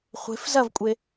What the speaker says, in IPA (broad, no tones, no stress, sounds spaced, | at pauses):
χʷ e̤ f z ɐ v kʷʼ e